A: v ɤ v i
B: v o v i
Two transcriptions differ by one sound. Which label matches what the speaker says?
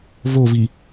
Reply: B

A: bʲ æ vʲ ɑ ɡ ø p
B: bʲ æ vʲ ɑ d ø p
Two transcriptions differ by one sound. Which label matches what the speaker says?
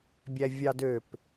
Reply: B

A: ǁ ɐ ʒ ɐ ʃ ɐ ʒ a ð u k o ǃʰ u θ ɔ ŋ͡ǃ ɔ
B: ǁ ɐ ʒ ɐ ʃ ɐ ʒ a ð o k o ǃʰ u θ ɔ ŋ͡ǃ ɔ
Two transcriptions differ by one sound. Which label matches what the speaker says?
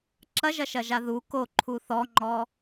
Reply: A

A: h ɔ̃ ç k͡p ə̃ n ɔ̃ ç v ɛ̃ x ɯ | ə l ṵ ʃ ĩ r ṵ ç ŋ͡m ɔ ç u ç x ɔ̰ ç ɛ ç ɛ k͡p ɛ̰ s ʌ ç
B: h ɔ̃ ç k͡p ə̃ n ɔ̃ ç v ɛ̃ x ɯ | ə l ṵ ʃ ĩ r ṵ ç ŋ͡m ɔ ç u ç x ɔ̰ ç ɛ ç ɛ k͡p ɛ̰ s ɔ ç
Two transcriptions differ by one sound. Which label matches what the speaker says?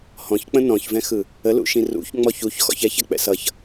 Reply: A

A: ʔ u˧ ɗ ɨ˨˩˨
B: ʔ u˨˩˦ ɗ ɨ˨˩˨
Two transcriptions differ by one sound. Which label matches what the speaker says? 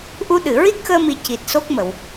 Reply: A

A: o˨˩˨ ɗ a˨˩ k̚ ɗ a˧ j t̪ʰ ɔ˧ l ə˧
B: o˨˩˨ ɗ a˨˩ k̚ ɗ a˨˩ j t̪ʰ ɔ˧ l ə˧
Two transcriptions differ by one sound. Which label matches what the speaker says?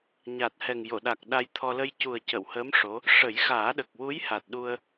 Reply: A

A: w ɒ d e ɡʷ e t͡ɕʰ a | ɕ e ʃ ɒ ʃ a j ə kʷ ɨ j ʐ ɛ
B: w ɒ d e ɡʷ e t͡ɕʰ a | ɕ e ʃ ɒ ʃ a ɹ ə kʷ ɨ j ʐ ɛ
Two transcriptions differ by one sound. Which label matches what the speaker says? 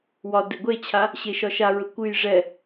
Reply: B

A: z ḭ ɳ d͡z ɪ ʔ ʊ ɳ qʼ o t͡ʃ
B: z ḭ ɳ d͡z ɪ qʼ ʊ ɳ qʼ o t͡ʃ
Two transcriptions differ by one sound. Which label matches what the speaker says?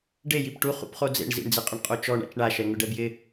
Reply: B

